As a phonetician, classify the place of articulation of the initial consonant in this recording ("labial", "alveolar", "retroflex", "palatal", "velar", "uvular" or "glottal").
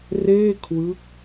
alveolar